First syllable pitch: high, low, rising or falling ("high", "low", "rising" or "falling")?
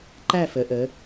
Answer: falling